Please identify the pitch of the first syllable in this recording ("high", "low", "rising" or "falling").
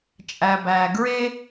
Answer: low